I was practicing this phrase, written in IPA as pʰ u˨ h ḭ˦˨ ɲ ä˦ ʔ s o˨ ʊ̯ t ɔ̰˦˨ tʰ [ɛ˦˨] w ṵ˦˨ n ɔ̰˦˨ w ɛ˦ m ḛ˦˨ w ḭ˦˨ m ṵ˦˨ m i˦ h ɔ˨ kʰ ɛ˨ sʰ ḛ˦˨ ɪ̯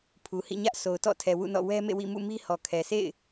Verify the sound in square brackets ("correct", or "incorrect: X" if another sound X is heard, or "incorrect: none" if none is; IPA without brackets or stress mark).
incorrect: ɛ˨